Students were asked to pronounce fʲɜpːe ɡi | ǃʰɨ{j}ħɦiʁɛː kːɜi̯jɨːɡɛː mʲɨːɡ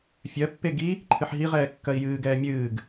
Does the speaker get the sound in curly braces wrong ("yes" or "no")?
yes